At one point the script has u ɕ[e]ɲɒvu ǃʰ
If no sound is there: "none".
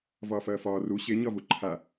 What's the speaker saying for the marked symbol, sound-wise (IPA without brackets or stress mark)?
e